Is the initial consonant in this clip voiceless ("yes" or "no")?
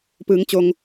yes